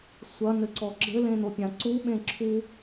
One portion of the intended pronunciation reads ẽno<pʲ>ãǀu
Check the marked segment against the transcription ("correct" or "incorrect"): correct